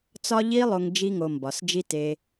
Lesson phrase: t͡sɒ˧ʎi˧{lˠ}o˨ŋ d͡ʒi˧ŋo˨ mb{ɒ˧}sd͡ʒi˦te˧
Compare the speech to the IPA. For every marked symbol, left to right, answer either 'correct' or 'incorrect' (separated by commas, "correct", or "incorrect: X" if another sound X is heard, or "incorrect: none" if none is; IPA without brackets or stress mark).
correct, incorrect: ɒ˨